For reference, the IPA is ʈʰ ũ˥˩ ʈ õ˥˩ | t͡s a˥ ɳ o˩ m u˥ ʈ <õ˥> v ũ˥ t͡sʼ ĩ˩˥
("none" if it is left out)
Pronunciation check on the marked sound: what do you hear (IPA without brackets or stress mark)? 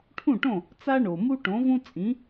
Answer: õ˩˥